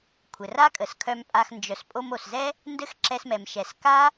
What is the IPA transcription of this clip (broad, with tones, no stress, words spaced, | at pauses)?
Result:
kʷʰɘ˨ra˦kʼə˨s kʰœ˧mpʼa˧x nd͡ʒœ˨s pʼo˧mo˨szɛ˦ | ndɘ˦xǁɛ˧smɛ˨m ʃɛ˨s ka˦